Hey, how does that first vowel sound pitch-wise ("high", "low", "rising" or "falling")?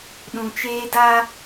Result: low